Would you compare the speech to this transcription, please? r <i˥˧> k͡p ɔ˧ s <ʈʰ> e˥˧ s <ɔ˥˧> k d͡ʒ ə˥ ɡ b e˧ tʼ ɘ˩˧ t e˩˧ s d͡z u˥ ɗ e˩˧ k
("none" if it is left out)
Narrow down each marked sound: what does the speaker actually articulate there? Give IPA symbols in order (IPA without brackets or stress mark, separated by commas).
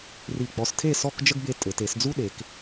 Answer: i˧˩, tʰ, ɔ˥˧